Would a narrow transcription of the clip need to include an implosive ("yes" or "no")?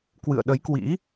yes